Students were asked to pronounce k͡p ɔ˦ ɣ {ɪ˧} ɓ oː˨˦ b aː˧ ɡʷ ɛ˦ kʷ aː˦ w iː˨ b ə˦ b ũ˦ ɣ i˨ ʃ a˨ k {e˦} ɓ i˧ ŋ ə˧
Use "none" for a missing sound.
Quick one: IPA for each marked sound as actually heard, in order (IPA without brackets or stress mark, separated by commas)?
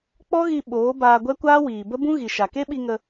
i˧, e˦